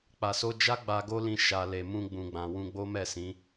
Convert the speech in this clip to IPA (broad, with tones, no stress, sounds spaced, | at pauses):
k͡p a˨ s o˧ d͡ʒ a˦ ɡ͡b a˧ ɡ o˦ l ĩ˧ ʃ a˨ l e˨ m ũ˧ ɡ͡b ũ˨ ɡ͡b ã˨ w ũ˧ ɡ͡b o˦ m ɛ˦˨ s ĩ˨˦